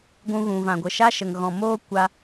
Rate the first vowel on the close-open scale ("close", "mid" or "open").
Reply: close